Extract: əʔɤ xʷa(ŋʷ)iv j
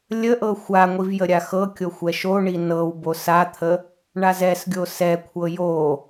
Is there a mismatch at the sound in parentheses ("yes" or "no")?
no